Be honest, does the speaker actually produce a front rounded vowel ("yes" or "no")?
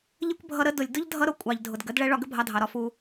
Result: no